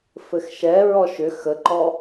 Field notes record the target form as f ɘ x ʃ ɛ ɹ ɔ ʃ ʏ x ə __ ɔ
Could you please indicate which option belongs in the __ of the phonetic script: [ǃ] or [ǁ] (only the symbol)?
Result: ǃ